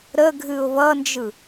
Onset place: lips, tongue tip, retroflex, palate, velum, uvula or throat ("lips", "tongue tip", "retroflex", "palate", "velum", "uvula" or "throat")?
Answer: tongue tip